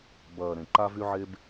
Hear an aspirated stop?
no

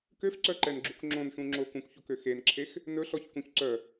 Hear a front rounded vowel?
yes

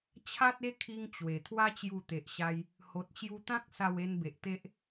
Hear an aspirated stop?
yes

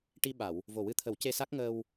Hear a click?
no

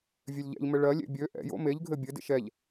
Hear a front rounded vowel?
yes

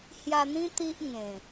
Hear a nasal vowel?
yes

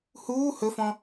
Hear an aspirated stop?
no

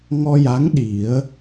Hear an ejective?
no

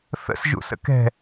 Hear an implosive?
no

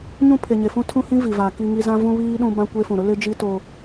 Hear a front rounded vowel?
no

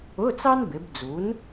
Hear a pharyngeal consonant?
no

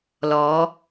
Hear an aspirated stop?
no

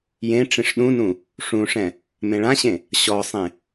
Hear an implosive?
yes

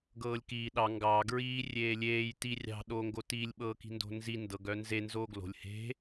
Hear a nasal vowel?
no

